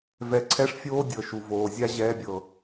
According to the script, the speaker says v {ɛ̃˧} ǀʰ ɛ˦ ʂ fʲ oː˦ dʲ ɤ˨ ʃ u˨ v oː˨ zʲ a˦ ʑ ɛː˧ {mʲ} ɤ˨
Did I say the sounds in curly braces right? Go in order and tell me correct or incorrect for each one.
incorrect, incorrect

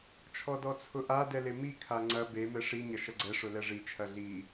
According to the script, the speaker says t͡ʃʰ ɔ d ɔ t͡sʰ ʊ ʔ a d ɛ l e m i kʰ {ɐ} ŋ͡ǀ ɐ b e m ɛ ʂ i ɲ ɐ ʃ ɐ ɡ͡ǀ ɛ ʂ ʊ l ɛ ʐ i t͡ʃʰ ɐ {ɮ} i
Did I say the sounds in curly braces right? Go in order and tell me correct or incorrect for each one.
incorrect, correct

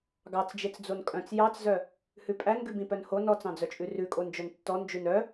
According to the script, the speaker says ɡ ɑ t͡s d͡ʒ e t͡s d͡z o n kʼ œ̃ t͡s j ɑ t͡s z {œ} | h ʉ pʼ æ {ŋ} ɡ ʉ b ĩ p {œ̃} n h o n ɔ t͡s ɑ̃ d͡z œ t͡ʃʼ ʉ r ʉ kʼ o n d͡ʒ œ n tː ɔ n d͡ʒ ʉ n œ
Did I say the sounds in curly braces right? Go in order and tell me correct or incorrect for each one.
correct, incorrect, incorrect

